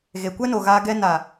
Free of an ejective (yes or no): yes